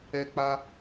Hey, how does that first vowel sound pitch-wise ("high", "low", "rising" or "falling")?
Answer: high